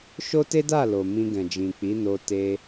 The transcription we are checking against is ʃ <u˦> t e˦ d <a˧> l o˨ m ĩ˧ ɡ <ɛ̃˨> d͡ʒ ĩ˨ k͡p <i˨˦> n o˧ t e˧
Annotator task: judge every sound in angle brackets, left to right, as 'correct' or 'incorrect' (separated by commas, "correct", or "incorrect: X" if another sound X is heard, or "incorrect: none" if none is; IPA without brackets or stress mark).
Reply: incorrect: o˦, incorrect: a˦˨, correct, correct